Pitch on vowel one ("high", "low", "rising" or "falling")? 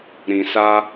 low